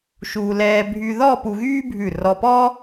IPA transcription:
ʃu˧ lɛː˧ bʱy˧ðɔ˥˧ pu˧ɣyː˥bʱʉ˧˩ rɔ˧pɔː˥

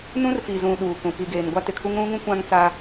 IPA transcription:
nũ˦rfi˨zũ˨ ɗuː˨kũ˨ pi˨ɡeː˨n ɡʷa˦tɪ˨kʰu˦ŋ ɾũ˦ŋũ˦ kʷã˦ŋt͡sa˦

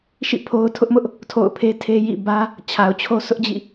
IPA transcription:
ʃḭ˦˨ pʰo˦ʊ̯ tʰʊ˦ʔmʊ˦ʔ | tʰo̰˦˨ʊ̯pʰe˦ tʰe˦jḭ˦˨ bä˦ | t͡ɕʰa˨ʊ̯t͡ɕʰo˦ sʰʊ˦ʔd͡ʑḭ˦˨

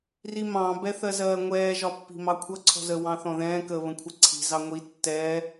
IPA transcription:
rimɑ̃ bɛθɜzɜːŋʷɛː ʒɒpːi̤mɑkʷʰʌ ǀʰɔ̤zə wɑ̃θɔ̃ðɛ̃ː kə βə̃kʷʰɛǀʰi̤ zɑŋʷi tːɛː

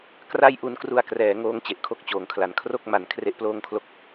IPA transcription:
kra˥˩j ʔu˧nkru˧a̯krɛː˩˦ŋoː˦˥ŋ t͡ɕe˨˩ʔkʰo˥˩k̚t͡ɕoː˩˦ŋkʰla˩˦n kʰro˥˩k̚ma˩˦n kʰre˥˩ʔploː˥˩ŋkʰlo˥˩k̚

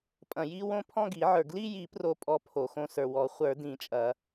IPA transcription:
pʼɐ̃˨ji˥˧wõ˥˧ pʰɔ̃˥˧ɡi˨˩˦ʕə˞˨ ɡli˥˧ji˨˩˦pro˨pʼɔ˨˩˦ pʰo˨xõ˥˧sə˞˨ wɔ˨˩˦ χʷə˞˨˩˦dĩ˨˩˦t͡ʃʼɐ˨˩˦

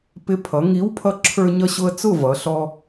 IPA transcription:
pɪ˨˥pʰʌ˩˧ŋi˨˥w pʰʌ˧ǁʰə˞˧ɲʌ˧ɕʊ˧ə̯ t͡sʊ˥˨vʌ˩˧ɬɔ˧

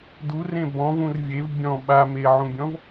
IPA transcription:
durẽ bɔ̃vũr vʲev bʲɔ̃ ɓameʕũbʲɔ̃v

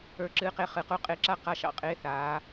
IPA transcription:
ə˞˧ǁɨː˧qe˧ χɨ˩˧ qu˧qʼe˧ǁa˥˧ qa˧ʃɑ̰˧˩qʼeː˧ θaː˩˧

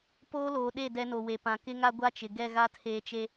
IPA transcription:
poː˦loː˨ɗe˦˨ dɛ˦no˨we˨pã˨ kɪ˦ŋa˦ɡʷa˦t͡ʃɪ˨ ɡɛ˦˨ɣa˦tʰeː˨t͡ʃe˦

